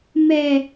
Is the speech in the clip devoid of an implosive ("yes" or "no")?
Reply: yes